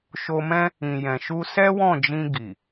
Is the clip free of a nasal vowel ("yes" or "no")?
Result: no